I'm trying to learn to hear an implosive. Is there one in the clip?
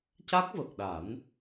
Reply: yes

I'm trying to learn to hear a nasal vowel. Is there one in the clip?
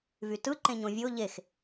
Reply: yes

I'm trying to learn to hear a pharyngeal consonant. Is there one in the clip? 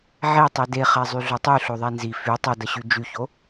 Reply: yes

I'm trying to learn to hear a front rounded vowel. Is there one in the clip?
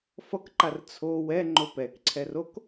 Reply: no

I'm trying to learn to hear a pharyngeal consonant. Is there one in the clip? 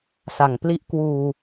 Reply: no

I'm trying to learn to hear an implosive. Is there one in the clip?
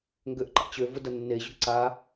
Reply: no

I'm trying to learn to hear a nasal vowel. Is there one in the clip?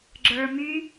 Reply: no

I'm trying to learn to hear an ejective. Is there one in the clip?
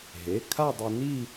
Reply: no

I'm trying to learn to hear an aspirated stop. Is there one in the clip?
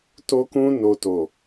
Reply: no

